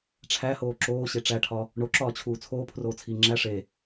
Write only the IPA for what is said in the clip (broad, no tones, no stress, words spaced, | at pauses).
ʈ͡ʂʰæhoː ǁoːɕe ʈ͡ʂæʈʰɒ | ɳoǁɒːt͡ɕʰuː t͡sʰoːpʰroːt͡sʰiː ŋ͡ǁæ ʂe